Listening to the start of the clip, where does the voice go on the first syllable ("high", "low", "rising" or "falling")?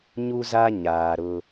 high